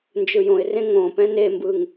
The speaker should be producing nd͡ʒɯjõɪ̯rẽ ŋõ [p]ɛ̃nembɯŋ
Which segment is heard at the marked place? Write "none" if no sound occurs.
p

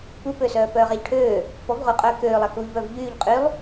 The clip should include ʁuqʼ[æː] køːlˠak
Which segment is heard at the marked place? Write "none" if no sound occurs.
œː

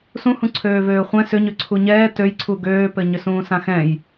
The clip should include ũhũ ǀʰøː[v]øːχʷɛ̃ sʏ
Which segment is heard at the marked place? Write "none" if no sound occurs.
v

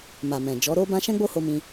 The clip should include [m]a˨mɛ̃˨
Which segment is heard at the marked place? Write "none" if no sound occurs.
m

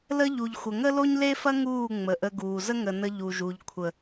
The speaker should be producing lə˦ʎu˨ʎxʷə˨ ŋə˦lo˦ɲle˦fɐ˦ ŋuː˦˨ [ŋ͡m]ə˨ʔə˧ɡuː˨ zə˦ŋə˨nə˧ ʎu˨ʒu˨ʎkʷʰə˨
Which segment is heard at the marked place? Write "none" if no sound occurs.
ŋ͡m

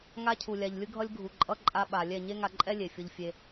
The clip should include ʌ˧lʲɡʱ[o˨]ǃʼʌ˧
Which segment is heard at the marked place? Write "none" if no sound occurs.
u˨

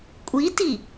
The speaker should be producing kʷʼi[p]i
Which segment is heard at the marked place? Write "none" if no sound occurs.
t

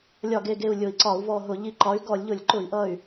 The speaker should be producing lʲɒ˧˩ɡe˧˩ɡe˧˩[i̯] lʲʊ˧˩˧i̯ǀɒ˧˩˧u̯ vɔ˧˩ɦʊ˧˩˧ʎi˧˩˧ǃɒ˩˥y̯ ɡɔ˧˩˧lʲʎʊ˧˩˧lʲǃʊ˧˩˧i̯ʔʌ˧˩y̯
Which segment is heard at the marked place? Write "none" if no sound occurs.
u̯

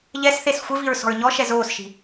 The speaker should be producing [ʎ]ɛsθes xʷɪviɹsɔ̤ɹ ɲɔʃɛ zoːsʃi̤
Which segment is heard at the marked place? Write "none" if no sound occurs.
ʎ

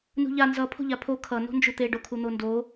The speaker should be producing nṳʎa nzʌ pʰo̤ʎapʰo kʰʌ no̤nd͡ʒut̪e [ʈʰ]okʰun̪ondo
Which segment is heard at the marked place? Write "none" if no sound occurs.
ɖ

